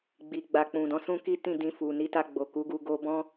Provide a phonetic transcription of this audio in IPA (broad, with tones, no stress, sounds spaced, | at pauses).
ɡ͡b i˨ ɡ͡b a˨ k͡p ũ˨ d ɔ̃˧ s ũ˦ k i˦ t ĩ˦˨ d ĩ˧ f u˨ n i˧ t a˧ ɡ͡b o˨ k u˨˦ ɡ u˧ ɡ o˦ b ɔ̃˦